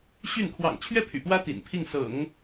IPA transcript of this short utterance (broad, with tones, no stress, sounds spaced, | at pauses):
ɕ y˥˩ n kʰ w ɑ̰˨˩ ŋ t͡ɕʰ ɥ ɛ˥˩ pʰ y̰˨˩ p w ä˥ t̪ ḭ˨˩ n pʰ i˥˩ ŋ s ɤ̰˨˩˦ ŋ